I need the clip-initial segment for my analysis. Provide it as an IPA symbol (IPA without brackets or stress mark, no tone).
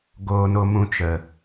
ɡ